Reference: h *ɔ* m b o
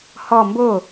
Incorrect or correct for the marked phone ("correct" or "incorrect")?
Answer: correct